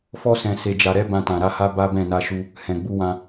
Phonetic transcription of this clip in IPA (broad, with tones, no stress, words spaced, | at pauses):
fɔ˧sɛ̃˨ se˨d͡ʒa˨ɾɛ˧ bã˧tã˨ɾa˧ha˦ ba˦bɛ̃˦˨ na˧ʃu˧ | hɛ̃˨ɡ͡bu˧wã˧